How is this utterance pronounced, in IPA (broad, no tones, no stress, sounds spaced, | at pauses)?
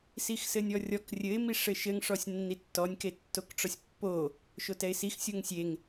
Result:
s i x s ɘ nʲ ɔ rʲ ɔ k rʲ ɘ ɪ̯ m i ʂ ɘ ʃ ɘ ŋ ʂ ɔ sʲ nː i tː ɔ nʲ k e tː o k ʈ͡ʂ ɔ sʲ pː o | ʃ o t ɛ ɪ̯ s i x sʲ o ŋ sʲ e ŋ